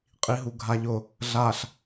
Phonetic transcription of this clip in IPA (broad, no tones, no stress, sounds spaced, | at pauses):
qʼ i ɦ u ɡʱ a ʎ ʊ | ɮ a ɬ